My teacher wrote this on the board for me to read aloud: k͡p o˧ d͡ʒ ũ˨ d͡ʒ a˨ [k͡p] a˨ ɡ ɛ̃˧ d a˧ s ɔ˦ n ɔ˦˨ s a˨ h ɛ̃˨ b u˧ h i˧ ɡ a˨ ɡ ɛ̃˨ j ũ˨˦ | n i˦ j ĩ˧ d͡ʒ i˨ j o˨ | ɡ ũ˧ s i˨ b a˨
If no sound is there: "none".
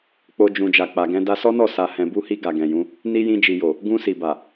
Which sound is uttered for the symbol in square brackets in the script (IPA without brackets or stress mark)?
k͡p